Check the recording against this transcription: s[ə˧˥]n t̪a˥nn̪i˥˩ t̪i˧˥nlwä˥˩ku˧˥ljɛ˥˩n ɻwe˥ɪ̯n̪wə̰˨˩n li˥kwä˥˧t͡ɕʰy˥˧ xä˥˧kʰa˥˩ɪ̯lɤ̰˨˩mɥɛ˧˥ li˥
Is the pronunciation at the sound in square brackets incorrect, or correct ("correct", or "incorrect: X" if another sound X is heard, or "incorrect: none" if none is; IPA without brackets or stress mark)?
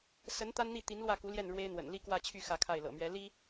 correct